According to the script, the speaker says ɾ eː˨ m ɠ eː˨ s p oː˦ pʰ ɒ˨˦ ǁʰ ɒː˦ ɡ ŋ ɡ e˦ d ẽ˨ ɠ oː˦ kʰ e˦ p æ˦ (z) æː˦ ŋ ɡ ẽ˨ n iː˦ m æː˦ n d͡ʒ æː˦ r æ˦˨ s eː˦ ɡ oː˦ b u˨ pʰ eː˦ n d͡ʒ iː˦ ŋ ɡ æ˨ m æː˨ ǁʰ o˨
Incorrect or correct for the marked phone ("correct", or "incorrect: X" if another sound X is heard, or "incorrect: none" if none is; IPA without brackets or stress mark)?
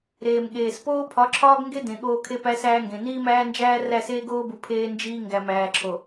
incorrect: s